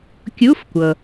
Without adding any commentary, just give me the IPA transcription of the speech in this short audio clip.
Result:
kʲ u˧˥˧ f kʷ ɤ˩

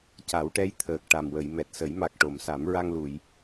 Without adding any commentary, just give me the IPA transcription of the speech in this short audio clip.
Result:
c a˨˩˦ w ʈ ɛ˧˥ j t̪ʰ əː˨˩ k̚ ʈ a˨˩ m w ə˨˩˨ j m ɛ˨˩ t̚ s ə˨˩˦ j m a˨˩ k̚ ʈ o˨˩˨ m s a˨˩˦ m ɹ a˧ ŋ l u˨˩˨ j

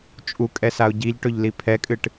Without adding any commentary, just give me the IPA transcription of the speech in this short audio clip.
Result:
t͡ʃʼ u kʼ ɛ s a ʊ̯ ɟ i ʎ ʈ ɵ ʎ l i pʰ ɛ kʼ ɨ ʈ

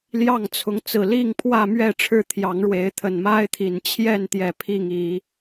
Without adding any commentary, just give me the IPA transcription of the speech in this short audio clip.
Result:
l j ɑ˥˨ ŋ t͡sʰ ʊ˨˦ ŋ t͡s ɹ̩˨˩ l i˥˨ ŋ pʰ w ä˥˨ m ɥ ɛ˥˨ ʈ͡ʂʰ ɻ̩˥˨ t̪ʰ j ɑ˨˦ ŋ ɻ w e˨˦ ɪ̯ t̪ʰ ə˨˩ n m a˦ ɪ̯ t̪ʰ i˨˩ n t͡ɕʰ j ɛ˥˨ n t̪ j ɛ˨˩ pʰ i˥˨ ŋ i˨˦

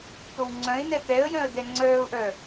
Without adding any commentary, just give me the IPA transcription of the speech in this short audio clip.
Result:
t̪ o w ŋ͡ǀ œ̃ ɪ̯ n ɛ t̪ ɛ ə̯ j œ̃ ə̯ d ɛ ŋ͡ǀ œː ʊ̯ ʔ œ

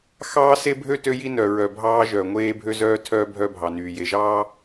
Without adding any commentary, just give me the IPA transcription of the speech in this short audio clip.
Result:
x ɑː˦ s e˦ bʱ ø˦ t ø˦ j i˦ n œ˨ ɹ œ˨ bʱ ɑː˦ ʒ œ˨ ŋʷ eː˦ bʱ ø˦ z œː˦ tʰ œː˦ bʱ œ˦ bʱ ɑ˨ n yː˨ j e˨ ʒ ɑː˦

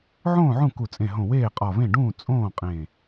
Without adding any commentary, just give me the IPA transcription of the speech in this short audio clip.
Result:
ʕ õː˥˩ ʕ ũ˥˩ k u˧˩ t͡sʼ ẽ˧˩ ɦ õ˧˩ w eː˥˩ qʼ ɒ˧˩ v ẽ˥˩ ɖ ũː˥˩ t͡sʼ õː˥˩ qʼ ẽː˧˩

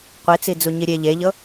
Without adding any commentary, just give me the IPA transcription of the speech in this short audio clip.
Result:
qʷ i t͡s i d͡z u ɲ i ɾʲ e ʎ e ʎ ɤ

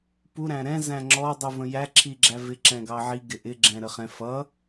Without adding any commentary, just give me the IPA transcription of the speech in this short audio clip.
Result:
p u ɾ æ̃ ɾ ɛ̃ z æ̃ ŋ͡ǁ ɔ dˤ u v ə̃ j æ ǁʰ i ɡ͡ǁ æ v ɪ ǁ ɛ̃ ɡ ɑ ʕ i ɡ ɪ ʔ ɪ ɡ͡ǁ ɛ̃ ɾ ə χ ɛ̃ f ʌ

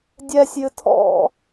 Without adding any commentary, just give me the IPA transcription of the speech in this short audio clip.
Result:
dʲ ɛ sʲ j ɨ tʰ ɔ̰

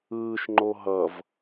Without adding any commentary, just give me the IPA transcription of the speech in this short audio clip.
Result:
ɯː ʃ ŋ͡ǃ o ɦ ʌ v

